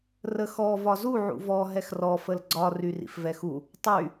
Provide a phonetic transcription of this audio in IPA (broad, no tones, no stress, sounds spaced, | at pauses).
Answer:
r ə x ɔ v ɒ z u ʕ ṵ v ɔ ɦ ɛ x r ɔ f ə l ɡ͡ǀ ɒ r y r ḭ f v ɛ x u | tˤ y